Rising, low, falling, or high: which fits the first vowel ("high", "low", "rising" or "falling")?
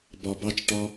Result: low